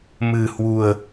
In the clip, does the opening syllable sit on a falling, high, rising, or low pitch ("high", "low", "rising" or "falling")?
low